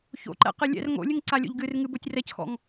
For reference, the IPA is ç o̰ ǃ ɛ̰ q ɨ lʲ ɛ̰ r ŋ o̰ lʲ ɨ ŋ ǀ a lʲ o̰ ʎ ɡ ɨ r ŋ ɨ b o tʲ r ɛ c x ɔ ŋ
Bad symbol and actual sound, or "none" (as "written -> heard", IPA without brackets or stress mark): ɔ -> ɔ̰